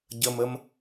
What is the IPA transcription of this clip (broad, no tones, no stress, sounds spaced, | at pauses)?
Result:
ɟ ə m ə m